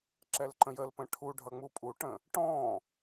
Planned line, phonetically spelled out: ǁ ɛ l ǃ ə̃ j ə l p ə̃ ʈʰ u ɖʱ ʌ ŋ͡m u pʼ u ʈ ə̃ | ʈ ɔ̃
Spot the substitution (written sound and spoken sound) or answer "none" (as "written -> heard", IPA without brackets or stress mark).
none